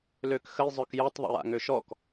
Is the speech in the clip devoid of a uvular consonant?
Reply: yes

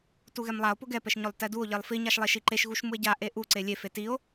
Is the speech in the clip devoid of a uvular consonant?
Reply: yes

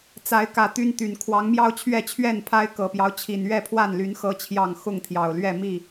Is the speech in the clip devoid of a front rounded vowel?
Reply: no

